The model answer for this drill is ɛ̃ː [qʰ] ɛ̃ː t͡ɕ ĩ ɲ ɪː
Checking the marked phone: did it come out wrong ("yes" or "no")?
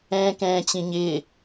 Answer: yes